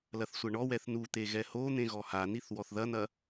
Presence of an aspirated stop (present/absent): absent